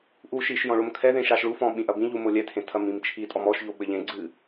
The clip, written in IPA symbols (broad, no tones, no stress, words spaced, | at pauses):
ʔu ʃiʃjɔ̃ ɭomkʰɛðẽʃ aʃɭufɔ̃ ɓĩʔɐbĩʎu molʲɛtʰẽ tʰɐmĩmt͡ʃʰitʼɔm ɔʃʎo ɓɘʎẽɡ͡ǀɨ